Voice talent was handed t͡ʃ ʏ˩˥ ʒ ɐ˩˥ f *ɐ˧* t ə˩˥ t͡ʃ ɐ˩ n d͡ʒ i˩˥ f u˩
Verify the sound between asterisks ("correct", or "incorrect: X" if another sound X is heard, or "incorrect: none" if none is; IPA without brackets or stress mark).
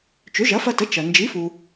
correct